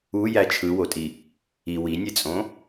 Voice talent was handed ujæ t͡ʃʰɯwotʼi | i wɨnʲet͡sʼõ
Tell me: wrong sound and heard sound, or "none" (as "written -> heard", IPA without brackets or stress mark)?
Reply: ɨ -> i